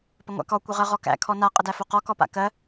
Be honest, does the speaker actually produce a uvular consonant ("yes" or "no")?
yes